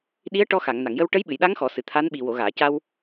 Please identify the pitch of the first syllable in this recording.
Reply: rising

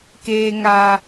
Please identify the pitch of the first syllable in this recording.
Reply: high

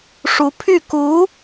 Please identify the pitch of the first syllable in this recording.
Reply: rising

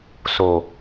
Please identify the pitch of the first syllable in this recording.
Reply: low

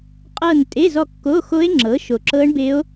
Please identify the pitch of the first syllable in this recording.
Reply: falling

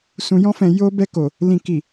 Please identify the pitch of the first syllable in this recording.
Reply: low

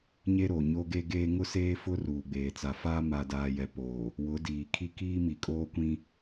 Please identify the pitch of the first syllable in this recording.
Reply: high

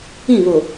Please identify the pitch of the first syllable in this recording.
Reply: falling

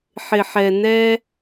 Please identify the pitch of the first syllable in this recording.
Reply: low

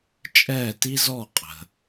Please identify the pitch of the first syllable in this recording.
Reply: falling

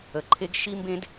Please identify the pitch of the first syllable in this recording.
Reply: low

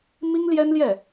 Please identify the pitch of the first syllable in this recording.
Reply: high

